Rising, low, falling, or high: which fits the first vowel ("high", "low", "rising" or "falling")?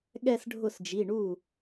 falling